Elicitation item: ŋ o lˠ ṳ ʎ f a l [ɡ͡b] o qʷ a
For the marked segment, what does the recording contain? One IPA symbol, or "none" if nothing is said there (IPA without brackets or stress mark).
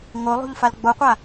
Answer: ɡ͡b